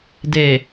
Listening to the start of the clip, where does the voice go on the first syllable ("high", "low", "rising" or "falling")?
low